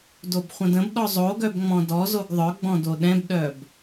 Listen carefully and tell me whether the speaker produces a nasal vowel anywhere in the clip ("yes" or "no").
yes